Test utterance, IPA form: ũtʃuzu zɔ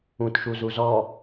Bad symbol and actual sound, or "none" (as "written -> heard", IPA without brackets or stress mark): none